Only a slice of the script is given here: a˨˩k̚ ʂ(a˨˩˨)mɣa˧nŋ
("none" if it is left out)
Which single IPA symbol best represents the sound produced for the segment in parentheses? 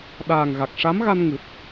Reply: a˧˥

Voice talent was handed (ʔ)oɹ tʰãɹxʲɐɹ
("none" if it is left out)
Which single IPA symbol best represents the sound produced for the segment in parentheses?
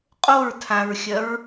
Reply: qʼ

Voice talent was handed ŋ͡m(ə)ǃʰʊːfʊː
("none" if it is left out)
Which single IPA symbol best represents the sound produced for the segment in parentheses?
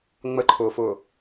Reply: ə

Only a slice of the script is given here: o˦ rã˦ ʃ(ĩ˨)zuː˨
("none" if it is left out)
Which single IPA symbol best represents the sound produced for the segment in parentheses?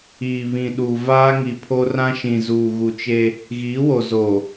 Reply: ĩ˨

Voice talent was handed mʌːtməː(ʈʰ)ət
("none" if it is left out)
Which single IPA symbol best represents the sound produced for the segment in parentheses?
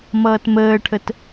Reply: ʈʰ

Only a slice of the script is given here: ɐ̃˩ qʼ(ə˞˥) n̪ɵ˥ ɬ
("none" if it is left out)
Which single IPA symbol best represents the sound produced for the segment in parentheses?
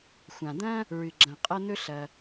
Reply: ɐ˥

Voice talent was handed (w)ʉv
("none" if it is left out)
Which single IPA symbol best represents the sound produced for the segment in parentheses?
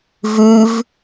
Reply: v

